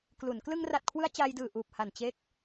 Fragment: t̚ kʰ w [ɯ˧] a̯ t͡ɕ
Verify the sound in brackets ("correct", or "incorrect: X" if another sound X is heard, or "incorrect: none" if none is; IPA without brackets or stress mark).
correct